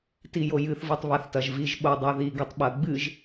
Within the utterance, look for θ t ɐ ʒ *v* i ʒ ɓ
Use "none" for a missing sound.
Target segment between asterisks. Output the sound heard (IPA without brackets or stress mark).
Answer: v